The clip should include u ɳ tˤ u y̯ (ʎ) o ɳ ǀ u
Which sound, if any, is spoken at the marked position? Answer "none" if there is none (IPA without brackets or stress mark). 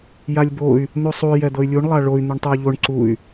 ʎ